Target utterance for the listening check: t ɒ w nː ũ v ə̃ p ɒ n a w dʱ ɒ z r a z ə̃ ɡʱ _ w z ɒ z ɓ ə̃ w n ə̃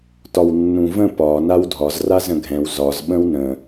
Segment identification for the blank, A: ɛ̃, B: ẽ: A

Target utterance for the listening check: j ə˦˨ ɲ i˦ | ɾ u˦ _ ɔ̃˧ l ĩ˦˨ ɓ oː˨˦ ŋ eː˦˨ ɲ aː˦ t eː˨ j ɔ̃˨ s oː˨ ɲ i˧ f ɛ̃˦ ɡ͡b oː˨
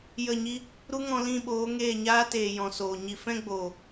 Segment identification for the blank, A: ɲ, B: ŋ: B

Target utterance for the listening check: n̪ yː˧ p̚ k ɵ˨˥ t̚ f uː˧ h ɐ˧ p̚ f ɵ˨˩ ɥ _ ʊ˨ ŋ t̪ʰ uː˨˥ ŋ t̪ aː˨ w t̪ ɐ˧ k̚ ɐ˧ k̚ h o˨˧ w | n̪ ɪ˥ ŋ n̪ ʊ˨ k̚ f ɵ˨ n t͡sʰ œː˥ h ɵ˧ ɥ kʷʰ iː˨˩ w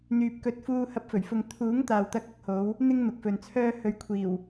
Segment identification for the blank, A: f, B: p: A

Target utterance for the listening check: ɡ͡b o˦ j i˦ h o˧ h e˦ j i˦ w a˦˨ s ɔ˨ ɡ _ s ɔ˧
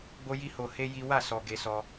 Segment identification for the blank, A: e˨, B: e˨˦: B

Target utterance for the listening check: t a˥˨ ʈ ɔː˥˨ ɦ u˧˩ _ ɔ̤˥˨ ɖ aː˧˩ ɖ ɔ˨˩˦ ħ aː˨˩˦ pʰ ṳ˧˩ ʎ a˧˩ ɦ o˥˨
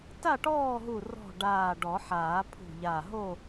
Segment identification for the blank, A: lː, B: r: B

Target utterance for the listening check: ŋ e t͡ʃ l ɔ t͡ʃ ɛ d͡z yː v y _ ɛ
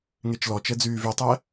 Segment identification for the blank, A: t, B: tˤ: B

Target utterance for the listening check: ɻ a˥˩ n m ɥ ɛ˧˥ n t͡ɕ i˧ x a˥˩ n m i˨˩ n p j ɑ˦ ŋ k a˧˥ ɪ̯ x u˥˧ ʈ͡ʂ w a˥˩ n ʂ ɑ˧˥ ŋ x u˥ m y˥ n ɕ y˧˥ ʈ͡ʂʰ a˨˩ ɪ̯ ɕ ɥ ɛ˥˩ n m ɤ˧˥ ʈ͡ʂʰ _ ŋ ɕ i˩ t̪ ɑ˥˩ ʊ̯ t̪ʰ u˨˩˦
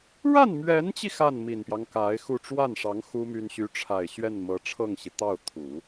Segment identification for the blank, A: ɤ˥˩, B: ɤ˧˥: A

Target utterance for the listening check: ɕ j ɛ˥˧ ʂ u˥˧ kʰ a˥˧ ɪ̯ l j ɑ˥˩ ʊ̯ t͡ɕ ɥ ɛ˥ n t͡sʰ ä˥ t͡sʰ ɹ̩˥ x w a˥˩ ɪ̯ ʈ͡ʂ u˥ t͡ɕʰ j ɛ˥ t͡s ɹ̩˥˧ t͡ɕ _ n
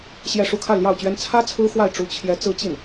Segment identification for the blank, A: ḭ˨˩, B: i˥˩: B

